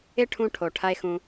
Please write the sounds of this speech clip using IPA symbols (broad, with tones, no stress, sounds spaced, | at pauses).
ɪ˦ ʈʰ ũ˧ ʈʰ o˨ ʈʰ ɐ˦ e̯ x ũ˧